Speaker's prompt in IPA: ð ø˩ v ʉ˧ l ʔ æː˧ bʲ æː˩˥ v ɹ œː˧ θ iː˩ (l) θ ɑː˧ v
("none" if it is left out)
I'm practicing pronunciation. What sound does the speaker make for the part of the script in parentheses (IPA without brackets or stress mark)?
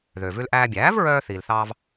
l